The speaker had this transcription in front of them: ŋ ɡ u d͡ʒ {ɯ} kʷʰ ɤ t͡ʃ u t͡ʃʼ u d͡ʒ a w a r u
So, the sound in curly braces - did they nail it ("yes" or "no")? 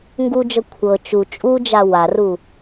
no